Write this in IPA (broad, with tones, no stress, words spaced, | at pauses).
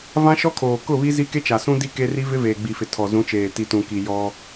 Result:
vã˦ʃɔ˦kʰoː˨ kʊ˦˨βi˦ zi˦ke˦t͡ʃa˨ sũ˦di˦ ke˦ri˦ vɪ˦veː˨ɡ͡bi˨fɪ˨ tʰɔ˨zũ˨˦t͡ʃeː˨ ti˨tũ˨ki˨ jɔ˦